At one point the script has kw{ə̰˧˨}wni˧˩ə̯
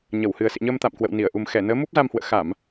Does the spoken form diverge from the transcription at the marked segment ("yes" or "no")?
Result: no